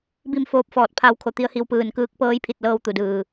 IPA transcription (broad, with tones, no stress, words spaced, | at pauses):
bi˥˨m foː˧˥p̚fɔː˧˩t̚ pʰa˧wkʰo˧t̪i˧ə̯hi˧w pɯː˧˩nkɯː˧˥k̚ pɤː˧˥jpʰi˧˩t̚lɤː˧w t̪u˩dɯː˩